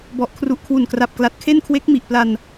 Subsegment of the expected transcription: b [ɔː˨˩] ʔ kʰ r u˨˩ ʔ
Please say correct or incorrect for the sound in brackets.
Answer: incorrect: ɔ˨˩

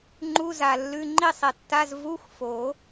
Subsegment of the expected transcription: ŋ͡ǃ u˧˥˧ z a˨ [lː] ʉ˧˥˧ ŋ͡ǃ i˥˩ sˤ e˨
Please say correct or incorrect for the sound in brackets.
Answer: correct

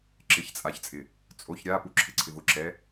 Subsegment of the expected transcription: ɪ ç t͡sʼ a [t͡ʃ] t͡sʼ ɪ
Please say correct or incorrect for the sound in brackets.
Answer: incorrect: ç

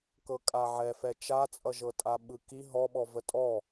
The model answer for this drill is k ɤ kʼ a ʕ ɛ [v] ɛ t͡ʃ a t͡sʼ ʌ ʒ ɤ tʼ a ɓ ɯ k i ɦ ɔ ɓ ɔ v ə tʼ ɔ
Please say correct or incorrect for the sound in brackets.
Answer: incorrect: f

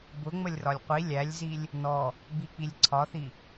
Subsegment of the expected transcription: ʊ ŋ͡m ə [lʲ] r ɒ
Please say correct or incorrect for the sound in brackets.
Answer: correct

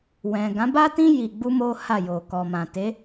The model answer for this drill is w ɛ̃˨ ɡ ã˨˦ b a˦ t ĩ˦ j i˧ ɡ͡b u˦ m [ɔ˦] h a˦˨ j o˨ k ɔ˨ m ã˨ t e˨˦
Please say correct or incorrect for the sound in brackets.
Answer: incorrect: o˦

